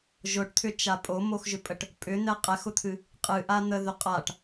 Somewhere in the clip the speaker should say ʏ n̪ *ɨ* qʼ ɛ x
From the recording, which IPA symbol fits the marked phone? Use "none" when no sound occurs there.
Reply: ɛ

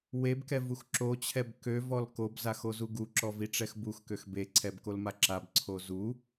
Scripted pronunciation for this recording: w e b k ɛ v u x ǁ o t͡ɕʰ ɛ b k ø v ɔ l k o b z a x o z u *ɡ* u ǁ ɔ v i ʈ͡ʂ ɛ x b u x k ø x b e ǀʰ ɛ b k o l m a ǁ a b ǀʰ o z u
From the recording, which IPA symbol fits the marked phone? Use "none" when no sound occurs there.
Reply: ɡ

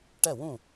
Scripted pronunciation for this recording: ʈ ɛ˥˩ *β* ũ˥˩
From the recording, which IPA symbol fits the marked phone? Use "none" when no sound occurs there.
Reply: w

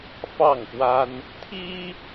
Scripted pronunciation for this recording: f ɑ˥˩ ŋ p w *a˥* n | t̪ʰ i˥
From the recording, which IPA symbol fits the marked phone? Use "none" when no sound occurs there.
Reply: a˥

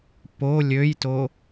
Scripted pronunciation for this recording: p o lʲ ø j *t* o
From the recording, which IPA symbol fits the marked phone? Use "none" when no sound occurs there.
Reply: t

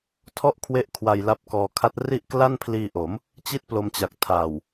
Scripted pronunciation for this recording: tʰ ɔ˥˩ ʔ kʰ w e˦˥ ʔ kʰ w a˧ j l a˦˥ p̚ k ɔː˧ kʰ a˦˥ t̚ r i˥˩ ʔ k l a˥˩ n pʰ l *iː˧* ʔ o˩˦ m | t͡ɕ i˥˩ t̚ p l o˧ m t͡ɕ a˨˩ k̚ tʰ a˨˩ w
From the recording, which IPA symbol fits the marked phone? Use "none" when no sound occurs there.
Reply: iː˧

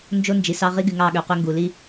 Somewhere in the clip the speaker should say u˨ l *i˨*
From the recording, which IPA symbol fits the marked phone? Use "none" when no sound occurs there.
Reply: i˦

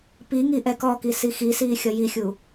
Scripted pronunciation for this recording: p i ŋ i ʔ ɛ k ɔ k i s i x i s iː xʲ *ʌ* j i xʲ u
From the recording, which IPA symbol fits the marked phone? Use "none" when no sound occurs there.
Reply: ʌ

